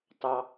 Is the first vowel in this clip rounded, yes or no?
no